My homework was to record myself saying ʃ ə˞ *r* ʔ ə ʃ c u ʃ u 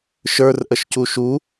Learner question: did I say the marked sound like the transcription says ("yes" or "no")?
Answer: yes